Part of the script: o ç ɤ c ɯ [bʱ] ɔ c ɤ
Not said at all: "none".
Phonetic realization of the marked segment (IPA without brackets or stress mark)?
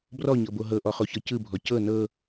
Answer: bʱ